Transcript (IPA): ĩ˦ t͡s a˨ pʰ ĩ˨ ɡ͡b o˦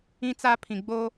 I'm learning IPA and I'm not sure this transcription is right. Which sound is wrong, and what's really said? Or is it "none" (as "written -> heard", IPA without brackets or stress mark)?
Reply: a˨ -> a˦